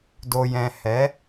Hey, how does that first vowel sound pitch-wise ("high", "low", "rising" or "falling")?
low